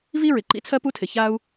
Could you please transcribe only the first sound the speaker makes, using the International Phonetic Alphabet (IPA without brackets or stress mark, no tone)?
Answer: v